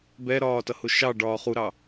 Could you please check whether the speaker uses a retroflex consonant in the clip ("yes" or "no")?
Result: yes